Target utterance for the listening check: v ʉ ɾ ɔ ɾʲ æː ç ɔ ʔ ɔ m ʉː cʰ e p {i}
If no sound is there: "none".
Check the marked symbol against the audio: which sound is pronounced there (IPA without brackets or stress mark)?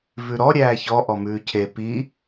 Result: i